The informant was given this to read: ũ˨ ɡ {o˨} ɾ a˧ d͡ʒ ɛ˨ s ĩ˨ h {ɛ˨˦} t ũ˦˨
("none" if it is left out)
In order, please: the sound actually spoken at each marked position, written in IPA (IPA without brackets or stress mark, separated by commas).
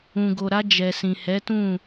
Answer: o˨, ɛ˨˦